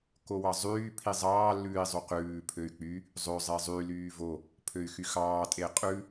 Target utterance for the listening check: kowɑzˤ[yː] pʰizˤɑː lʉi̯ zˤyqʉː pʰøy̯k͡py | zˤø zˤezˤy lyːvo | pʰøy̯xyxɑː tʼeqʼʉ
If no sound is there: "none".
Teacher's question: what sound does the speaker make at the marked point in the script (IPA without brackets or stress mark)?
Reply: yː